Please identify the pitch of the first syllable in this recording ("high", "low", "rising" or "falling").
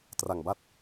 low